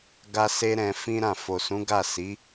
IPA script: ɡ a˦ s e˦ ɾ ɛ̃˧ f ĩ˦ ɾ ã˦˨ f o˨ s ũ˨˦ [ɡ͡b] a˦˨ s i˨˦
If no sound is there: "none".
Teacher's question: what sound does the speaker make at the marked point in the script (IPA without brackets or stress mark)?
ɡ